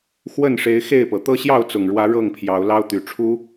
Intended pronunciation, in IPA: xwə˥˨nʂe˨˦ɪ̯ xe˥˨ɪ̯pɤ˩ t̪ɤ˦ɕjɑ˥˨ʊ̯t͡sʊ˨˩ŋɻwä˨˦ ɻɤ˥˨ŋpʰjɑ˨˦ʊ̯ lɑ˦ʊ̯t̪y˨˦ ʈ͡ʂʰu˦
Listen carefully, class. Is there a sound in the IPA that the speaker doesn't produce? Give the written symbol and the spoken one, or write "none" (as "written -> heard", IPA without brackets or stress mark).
none